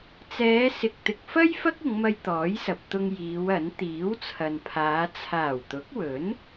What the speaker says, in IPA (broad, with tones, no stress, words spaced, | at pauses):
t͡sɛː˨˧sɪ˨k̚ t̪ɪ˨k̚fɐ˥j fɐ˥k̚ʊ˨˧ŋmɐ˧j t̪ɔː˨˥jsɐ˨p̚t̪ʊ˧ŋ jiː˨˧wɐ˨˥n t̪iː˨˥wt͡sʰɐ˨npʰaː˨˧ t͡sʰaː˨˩wt̪ʊ˨˥k̚wɵ˨˥n